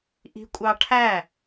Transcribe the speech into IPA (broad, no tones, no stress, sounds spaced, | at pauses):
ʔ i̤ kʷʼ ɑ ʈʰ æ